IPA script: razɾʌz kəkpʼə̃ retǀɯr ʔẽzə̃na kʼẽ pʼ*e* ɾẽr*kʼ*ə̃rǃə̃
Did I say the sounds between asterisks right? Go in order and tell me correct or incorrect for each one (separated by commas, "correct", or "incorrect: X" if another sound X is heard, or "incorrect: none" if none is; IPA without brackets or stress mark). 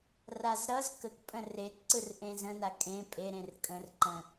correct, correct